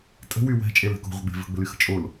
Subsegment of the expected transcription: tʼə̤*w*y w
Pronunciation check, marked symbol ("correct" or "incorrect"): correct